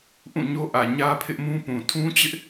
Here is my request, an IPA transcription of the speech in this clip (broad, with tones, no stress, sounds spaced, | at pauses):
ʔ ũ˦˨ ɲ o˦ ʔ ä˨ ɲ ä˦ pʰ ɪ˦ ʔ m ũ˦ p ũ˨ tʰ ũ˦ t͡ɕ ɪ˦ ʔ